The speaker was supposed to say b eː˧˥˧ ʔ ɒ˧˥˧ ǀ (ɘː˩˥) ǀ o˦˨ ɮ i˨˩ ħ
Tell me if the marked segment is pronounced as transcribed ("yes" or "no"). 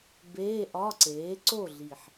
no